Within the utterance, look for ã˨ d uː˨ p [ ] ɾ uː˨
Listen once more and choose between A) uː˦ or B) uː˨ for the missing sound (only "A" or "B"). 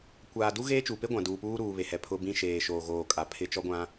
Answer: A